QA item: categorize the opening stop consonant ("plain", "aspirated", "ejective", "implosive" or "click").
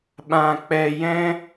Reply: implosive